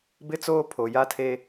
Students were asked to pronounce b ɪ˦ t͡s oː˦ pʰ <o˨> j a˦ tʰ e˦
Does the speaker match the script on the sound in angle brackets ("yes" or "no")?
yes